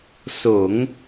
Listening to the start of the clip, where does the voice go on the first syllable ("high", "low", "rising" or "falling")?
low